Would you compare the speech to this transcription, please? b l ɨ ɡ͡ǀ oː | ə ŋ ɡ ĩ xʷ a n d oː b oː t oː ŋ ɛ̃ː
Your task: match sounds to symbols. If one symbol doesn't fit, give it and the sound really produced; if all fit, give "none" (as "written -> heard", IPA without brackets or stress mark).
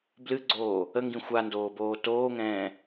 none